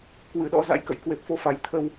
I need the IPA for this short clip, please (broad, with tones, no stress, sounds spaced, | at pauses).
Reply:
k w ɨ˧˩ ɗ ɔ̰˧˥ z a̰˧˥ j k ə̰˧˨ j k w e˨˩ p̚ f o˧ f a˨˩ j t̪ʰ ə˧ w